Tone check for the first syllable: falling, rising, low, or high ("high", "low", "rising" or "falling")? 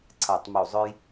falling